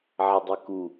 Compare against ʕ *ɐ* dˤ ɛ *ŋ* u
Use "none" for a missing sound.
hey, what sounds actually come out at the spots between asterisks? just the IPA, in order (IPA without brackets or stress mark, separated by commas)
ɐ, k